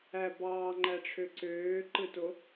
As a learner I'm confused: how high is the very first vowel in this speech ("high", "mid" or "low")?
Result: low